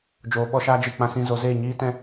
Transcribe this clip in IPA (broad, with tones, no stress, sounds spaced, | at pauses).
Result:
d͡ʒ oː˨˦ ɓ ɔ˧ ʃ aː˦ d͡ʒ ɨ˦˨ k͡p ã˦ s ĩ˦ z o˨˦ z eː˦˨ ɲ iː˦ t ɛ̃˦